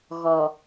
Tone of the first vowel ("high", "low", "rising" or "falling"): low